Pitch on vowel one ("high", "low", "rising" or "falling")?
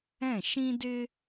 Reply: falling